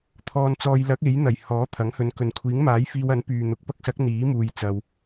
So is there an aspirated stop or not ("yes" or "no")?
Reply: yes